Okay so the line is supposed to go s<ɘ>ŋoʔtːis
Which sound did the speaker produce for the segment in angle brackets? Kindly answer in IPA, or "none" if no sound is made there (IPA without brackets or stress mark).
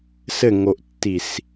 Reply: ɘ